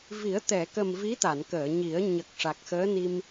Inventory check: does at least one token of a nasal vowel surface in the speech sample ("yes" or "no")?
no